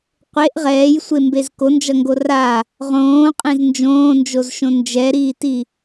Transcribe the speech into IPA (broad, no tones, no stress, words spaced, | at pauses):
qʷeʔ ʁɛːjsʷembez kond͡ʒʌŋɡo ra | ʁõːqʼẽz nd͡ʒõːnd͡ʒozʃõ nd͡ʒɛɾiːti